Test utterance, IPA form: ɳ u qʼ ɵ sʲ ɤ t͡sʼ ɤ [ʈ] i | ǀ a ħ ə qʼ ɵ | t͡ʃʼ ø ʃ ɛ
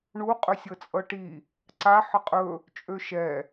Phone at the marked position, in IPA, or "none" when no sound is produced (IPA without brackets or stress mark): ʈ